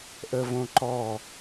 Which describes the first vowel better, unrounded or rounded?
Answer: unrounded